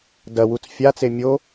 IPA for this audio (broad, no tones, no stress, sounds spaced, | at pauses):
d ɐ w u t͡s fʲ a t͡s e mʲ o